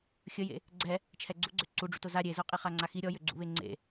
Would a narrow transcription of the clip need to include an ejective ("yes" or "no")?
yes